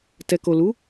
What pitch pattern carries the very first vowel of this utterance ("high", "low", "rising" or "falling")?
low